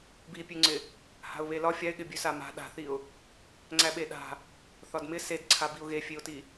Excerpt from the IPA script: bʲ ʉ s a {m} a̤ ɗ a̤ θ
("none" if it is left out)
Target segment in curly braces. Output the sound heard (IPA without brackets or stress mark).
m